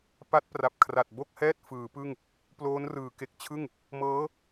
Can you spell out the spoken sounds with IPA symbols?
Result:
pa˦˥t̚pra˨˩p̚ kʰra˨˩t̚bo˥˩k̚hɛː˥˩t̚ fɯː˩˦pɯ˥˩ŋ | ploː˦˥nrɯː˩˦ke˨˩k̚ t͡ɕʰɯ˥˩ŋ | mɤː˦˥

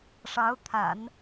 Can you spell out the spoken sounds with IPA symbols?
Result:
ʂɑ˧˥ʊ̯t̪ʰa̰˨˩˦n

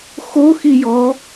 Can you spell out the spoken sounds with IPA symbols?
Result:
xo xijɔ

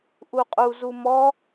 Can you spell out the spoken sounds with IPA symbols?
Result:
ʔuqʼu zumɔ

